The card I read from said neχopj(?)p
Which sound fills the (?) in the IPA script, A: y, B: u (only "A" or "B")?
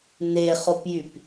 A